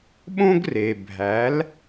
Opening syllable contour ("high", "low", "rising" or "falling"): high